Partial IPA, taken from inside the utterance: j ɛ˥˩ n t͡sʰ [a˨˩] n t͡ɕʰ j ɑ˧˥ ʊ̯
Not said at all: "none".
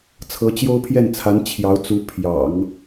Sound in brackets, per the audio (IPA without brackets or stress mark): a˧˥